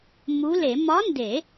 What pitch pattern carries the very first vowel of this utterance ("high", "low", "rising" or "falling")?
rising